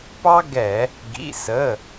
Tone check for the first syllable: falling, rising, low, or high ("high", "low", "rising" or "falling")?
high